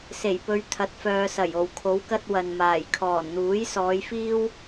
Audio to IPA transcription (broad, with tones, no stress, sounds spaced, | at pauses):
s e˨˩ j p ɵ˨˧ ɥ t̪ʰ ɐ˨˥ t̚ f œː˨ s ɐ˨˩ j o˨˩ w kʰ o˨˥ w k ɐ˥ t̚ w ɐ˨ n m aː˨˩ j kʰ ɔː˨˩ n n̪ uː˨˥ j s ɔː˨˧ j f iː˥ w